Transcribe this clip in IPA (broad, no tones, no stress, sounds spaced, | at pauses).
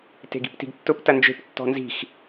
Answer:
t e̤ ɡ i̤ p t i̤ ɡ tː ʊ p t ɐ n d͡ʒ e̤ p tː ɔ̤ n z i̤ x